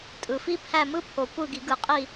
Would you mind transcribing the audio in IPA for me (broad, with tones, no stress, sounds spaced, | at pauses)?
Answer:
tʼ ɯ˨˩ f i˦˥ pʰ æ˦˨ m ɯ˦˥ pʰ o˨˩ kʷ ɯ˦˨ ɡ i˨˩˦ ɡ ɯ˨˩˦ qʼ i˦˨